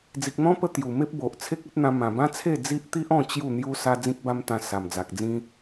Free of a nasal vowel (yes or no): no